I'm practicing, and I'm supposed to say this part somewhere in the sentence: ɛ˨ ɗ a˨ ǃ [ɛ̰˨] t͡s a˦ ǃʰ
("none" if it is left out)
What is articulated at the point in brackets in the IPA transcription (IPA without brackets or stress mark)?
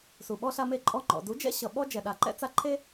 ɛ̰˦